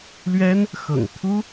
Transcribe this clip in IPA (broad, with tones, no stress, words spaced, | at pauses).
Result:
lɥɛ˥n | xɤ̰˨˩ŋt̪ʰu˥